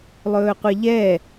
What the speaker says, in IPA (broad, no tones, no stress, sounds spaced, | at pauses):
lˠ ɵː qʷ e ʎ ɛ